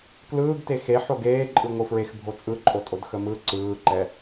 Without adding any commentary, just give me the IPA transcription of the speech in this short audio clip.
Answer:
klɯːɡte xe ħoɡeːǃʼɯ ŋʷɯfɹex bʱot͡sʼɯǃʼotʼod xəmɯ ǀɯːǃɛ

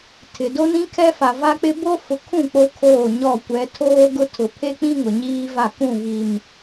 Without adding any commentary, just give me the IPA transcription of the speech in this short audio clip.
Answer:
tʰɪ˨ do˦nĩ˦kʰɛ˦fa˨ va˦k͡pɪ˦ bo˦ fʊ˨kʰũ˦˨ k͡po˦kʰoː˦˨ɲɔ˦˨ kʷɛ˨˦tʰoː˦ ɡʊ˦ tʰʊ˨pʰe˦k͡pĩ˦ ŋʊ˨ɲiː˦va˦˨ kũ˦˨ βi˨m

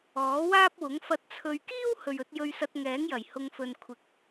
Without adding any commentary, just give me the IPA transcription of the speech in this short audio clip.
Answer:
ɔː˨˥waː˥p̚wʊ˨˥ŋ fɐ˨t̚t͡sʰɵ˨ɥkiː˥w hɵ˨ɥɵ˨˥t̚ jɵ˧ɥsɐ˧t̚ŋɛː˨˥ŋjɐ˨˩j hʊ˨ŋfɵ˨n kʷʰɪ˨˥k̚

